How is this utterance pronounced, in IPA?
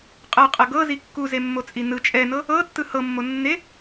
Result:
qʼɤqʼɤ ɡɤzi kːuzemːot͡sʼi nɯ t͡ʃʼɛnɤ | ɤtːɯ hɤmːonːe

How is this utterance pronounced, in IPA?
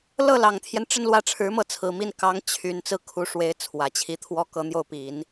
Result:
lɤ˥˩lɑ˨˩ŋt̪ʰjɛ˦n ʈ͡ʂə˥˧nlwä˥˩ʈ͡ʂʰɻ̩˧˥mɤ˥˩ t͡sʰɹ̩˨˩mi˥˩n kɑ˧˥ŋ t͡ɕʰy˨˩n t͡sɹ̩˥˩kʰu˧˥ʂwe˧˥ɪ̯ t͡sʰwä˨˩t͡ɕʰi˧˥ t̪ʰwɔ˥kɤ˧˥n̪jo˥˩ʊ̯ pi˨˩˦n

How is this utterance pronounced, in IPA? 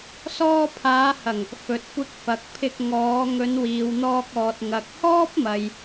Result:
sɔː˧pʰaː˨˧hɐ˨˩ŋ | fɵ˨t̚kʷɪ˧k̚fɐ˨k̚pʰɪ˧k̚ ŋɔː˨˧ ŋɵ˨˧nwiː˨wn̪ɔː˧k̚ɔː˨t̚ ŋɐ˨k̚hɔː˥p̚mɐ˨j

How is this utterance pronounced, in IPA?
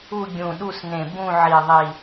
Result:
u˦˨ɡʲũ˨˩ɗu˦˨s nẽ˨˩bũ˦˨ ʕi˨˩ðˤi˨˩

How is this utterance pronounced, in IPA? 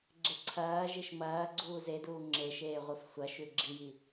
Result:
ɡ͡ǁeǀʰɐːʒiʃ mɐː ɡ͡ǀuːzeduː ŋ͡ǁeʃeː ʁʷɨfsʷɐʃʉ ɡ͡ǁiji

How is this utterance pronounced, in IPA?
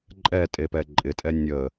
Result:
ǃʼɛ tʼepɛǃʼɪtʼɛ nʲə

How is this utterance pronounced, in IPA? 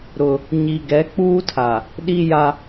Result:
ɾʊ˦ | ɲi˨ɡɛ˨˦k͡puː˦tʰa˨ | ɗi˦ja˦

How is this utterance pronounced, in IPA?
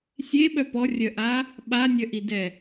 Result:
sʲeɓœ pɔrʲœʔa | ɓanʲœʔidɛ

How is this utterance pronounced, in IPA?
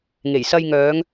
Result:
ŋe˨˩jsɐ˧jŋœː˨˧ŋ

